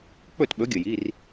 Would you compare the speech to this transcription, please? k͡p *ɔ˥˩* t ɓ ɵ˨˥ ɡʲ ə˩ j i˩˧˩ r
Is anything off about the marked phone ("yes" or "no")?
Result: yes